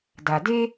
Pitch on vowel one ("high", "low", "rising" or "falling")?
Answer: low